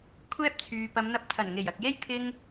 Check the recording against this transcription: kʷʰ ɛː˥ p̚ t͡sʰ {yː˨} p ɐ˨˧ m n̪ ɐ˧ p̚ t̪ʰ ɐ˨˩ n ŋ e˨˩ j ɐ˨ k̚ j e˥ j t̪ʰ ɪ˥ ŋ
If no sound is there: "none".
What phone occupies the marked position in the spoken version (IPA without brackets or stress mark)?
yː˨